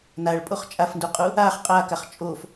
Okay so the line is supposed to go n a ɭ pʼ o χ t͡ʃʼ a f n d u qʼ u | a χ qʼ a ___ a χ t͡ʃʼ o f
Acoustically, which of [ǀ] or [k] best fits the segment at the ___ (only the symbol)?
k